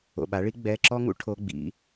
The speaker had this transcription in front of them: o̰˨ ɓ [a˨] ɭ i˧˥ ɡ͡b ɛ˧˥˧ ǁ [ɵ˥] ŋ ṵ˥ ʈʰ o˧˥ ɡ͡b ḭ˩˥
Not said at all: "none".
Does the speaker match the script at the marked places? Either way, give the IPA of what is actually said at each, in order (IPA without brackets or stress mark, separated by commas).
a˩˥, ɔ˥